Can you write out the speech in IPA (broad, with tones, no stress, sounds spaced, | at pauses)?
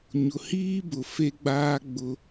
ɲ ʊ˨ h iː˦ b ʊ˨ f e˦ ɡ͡b aː˦ ɡ͡b ʊ˦